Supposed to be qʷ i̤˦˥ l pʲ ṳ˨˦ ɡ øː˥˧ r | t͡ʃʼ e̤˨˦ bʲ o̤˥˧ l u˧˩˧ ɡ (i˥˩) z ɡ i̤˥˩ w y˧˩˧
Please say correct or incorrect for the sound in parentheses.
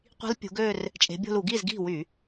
correct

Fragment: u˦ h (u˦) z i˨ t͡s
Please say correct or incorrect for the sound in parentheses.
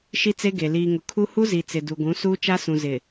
correct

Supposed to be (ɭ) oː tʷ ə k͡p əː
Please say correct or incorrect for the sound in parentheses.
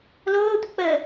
incorrect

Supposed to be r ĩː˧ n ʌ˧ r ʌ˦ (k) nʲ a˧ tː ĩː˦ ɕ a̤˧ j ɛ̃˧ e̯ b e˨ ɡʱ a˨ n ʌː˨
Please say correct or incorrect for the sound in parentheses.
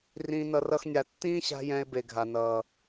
incorrect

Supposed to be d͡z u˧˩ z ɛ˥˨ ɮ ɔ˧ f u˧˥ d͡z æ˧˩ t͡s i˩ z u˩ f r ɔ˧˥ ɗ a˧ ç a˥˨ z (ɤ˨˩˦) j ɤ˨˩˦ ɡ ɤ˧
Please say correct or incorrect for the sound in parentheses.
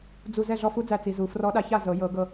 correct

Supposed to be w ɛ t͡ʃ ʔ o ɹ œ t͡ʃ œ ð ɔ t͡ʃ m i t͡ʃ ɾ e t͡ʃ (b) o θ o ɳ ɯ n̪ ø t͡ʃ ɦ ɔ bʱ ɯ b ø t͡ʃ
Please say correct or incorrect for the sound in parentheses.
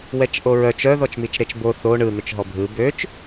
correct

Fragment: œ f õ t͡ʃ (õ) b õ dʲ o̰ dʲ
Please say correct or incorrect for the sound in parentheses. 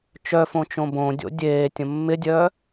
correct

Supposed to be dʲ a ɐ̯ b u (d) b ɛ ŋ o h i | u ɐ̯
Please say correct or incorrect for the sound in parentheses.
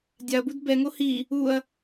correct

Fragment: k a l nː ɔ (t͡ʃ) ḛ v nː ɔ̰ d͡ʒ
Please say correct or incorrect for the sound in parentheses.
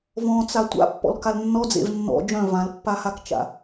incorrect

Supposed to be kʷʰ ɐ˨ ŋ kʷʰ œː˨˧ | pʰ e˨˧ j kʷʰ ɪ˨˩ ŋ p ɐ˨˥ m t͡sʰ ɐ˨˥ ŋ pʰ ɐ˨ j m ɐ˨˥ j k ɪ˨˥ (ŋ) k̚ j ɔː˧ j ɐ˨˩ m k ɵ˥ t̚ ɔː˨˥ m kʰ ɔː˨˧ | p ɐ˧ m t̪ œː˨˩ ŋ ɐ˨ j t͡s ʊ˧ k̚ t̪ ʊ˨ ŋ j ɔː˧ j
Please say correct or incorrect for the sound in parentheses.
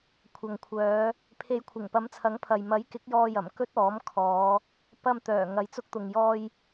incorrect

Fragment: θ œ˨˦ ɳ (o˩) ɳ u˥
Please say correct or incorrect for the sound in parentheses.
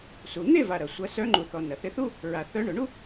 correct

